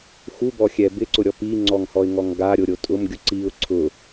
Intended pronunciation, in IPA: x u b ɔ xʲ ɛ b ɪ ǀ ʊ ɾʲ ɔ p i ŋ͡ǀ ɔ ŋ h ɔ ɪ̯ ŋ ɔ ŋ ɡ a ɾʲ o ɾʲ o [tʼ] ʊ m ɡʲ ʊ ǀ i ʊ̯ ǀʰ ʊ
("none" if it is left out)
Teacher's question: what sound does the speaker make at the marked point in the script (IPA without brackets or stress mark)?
tʼ